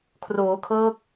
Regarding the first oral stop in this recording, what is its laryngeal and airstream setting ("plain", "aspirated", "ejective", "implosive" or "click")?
aspirated